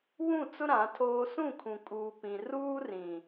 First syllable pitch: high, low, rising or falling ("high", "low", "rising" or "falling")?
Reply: falling